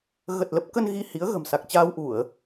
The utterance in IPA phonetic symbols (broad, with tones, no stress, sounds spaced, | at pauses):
ɣ ə˨˩ t̚ l ə˦˥ p̚ k ə˧ n ɣ i˧ h i˨˦ ə̯ ɣ ə̤˨˩ m s a˨˩ k̚ t͡ɕ aː˧ w ʔ u˧˩˨ ə̯